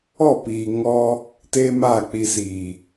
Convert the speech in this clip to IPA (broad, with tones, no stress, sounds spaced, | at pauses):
ɔ˦˨ p iː˨ ŋ ɔ˦ | t eː˦ m aː˦˨ k͡p i˨ s iː˨